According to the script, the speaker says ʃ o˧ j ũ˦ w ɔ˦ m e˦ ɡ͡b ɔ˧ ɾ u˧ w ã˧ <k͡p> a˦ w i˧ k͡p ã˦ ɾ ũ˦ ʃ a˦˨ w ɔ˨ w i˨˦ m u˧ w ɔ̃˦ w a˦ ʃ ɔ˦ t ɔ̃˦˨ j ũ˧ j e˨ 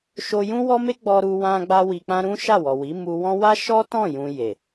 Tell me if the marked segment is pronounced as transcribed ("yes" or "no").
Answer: no